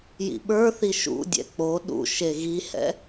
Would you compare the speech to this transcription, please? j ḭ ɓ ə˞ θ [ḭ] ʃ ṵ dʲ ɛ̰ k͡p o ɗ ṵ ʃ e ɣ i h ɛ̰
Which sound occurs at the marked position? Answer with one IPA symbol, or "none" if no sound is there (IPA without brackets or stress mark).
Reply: i